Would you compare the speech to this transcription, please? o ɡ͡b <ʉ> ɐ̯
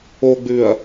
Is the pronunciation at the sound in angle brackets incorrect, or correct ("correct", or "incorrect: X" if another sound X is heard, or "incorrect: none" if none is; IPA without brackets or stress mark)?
correct